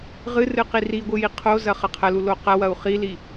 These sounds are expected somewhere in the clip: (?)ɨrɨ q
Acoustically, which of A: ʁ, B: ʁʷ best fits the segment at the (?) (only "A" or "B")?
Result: A